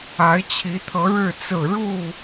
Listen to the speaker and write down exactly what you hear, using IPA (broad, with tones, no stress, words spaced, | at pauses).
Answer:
a˨˦ɪ̯t͡ɕʰi˨˦t̪ʰɤ˨˦ ɻɻ̩˥˨t͡sɹ̩˥˨ ɻu˥˨